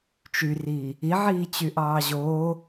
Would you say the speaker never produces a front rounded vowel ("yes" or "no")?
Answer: no